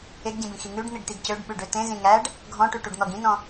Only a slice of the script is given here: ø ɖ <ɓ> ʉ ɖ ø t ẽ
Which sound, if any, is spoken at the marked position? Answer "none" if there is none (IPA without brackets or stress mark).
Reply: ɓ